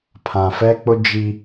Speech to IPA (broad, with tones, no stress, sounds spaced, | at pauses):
pʰ ã˨ f ɛ˦ k͡p ʊ˦ d͡ʒ i˦